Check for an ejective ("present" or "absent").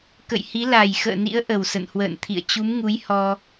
absent